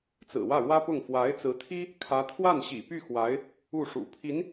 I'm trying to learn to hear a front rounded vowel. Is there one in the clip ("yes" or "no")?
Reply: yes